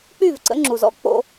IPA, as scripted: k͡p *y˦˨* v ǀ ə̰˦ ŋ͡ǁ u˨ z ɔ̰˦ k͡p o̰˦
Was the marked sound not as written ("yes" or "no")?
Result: no